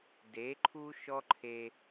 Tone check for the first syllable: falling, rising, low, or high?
rising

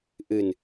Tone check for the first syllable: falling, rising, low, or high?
low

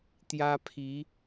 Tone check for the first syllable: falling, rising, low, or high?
high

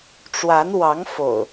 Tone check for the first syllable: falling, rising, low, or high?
rising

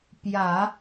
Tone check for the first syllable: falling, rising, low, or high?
low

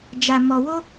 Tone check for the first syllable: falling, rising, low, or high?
low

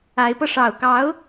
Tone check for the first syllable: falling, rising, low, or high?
rising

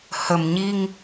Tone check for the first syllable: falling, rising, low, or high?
low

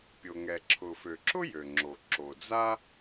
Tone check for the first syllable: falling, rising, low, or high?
low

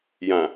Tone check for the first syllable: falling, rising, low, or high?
low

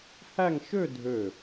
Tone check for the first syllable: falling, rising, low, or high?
falling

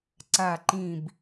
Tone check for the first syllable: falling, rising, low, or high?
low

